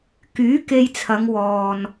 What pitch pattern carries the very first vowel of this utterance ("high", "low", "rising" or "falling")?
rising